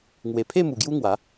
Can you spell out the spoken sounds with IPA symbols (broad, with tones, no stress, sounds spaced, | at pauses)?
ŋ w e˨˩ pʰ e˥˧ m u˨˩ ɡ j u˦ ŋ w a˨˦